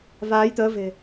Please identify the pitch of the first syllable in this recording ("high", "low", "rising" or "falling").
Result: rising